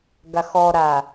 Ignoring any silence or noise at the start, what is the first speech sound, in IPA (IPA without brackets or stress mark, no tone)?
ɡ